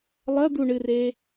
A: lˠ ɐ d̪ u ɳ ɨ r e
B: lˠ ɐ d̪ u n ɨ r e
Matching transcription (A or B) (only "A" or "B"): A